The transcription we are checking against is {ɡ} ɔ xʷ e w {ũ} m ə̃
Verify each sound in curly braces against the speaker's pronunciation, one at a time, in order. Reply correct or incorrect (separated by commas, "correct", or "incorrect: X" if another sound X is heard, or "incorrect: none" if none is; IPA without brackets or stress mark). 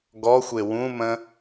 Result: correct, correct